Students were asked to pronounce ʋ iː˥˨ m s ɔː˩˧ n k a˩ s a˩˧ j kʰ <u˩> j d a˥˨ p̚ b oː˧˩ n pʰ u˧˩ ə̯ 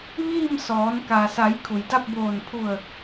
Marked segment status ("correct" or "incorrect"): correct